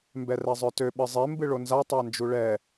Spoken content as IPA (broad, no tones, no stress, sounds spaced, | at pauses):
m b ɛ r ɛ zˤ œ t ø ɓ ɨ zˤ e m b ɨ ɭ o n z a tˤ a n d͡ʒ u ɭ ɛ